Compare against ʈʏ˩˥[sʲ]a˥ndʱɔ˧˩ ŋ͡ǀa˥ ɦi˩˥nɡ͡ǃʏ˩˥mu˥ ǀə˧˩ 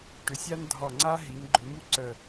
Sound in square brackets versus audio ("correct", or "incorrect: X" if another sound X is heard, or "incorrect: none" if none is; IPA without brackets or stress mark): correct